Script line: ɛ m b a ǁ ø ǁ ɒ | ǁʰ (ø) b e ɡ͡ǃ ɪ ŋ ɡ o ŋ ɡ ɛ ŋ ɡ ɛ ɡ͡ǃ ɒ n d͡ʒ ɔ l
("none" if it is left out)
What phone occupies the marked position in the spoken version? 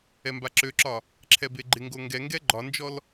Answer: ɛ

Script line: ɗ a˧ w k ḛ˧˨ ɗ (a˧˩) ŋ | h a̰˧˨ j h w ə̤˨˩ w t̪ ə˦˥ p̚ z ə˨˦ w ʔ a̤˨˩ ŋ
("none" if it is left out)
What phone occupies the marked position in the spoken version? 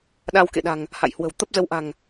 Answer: a̤˨˩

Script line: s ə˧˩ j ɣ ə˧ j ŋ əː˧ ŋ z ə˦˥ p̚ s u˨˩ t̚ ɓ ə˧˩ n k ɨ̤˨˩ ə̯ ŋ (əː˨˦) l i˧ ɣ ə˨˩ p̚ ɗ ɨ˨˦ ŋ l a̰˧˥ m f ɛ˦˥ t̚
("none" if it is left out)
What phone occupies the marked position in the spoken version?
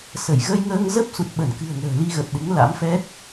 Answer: ə̤ː˨˩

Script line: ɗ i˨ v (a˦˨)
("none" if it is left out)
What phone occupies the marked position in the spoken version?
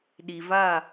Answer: a˦˨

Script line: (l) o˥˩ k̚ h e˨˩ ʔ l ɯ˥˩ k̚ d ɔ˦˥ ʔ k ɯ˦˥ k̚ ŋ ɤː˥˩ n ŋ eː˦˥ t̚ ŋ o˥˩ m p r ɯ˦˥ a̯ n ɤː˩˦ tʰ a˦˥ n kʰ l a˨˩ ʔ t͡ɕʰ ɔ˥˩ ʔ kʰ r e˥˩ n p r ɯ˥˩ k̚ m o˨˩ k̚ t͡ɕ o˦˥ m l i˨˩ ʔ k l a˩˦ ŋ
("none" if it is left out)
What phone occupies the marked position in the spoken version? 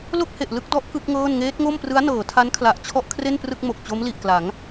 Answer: l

